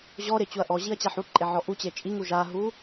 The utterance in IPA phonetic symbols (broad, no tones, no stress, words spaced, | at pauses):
ʑɔɾɪ t͡ɕuɐ̯ʔɔʑiɐ̯ t͡ɕaħuǃʼe ʕɔʔut͡ɕe t͡ʃʼiŋu ʒaɦu